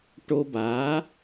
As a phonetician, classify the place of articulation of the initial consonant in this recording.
retroflex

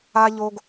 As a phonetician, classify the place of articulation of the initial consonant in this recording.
palatal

